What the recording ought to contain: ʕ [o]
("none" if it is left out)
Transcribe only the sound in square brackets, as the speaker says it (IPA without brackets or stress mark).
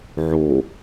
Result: o